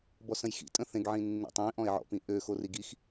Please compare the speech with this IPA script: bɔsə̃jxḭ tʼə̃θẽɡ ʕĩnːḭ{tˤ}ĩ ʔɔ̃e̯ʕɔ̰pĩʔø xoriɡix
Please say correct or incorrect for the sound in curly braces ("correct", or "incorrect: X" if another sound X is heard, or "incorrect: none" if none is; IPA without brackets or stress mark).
correct